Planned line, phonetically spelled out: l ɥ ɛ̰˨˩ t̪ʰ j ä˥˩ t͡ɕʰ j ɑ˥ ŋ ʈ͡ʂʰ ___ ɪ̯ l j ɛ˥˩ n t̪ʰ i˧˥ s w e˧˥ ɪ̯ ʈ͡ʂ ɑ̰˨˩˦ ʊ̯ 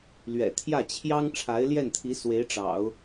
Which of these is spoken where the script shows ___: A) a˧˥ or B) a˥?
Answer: A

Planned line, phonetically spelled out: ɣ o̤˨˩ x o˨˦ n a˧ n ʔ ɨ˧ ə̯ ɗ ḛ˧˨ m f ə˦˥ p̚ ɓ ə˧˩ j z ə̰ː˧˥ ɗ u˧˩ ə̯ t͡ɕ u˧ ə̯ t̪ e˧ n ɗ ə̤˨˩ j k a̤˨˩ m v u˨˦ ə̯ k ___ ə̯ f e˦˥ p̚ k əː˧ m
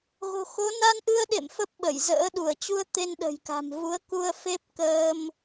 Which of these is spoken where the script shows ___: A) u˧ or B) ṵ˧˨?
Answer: A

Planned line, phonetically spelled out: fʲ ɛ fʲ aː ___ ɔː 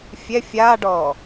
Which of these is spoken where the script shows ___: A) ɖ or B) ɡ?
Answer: A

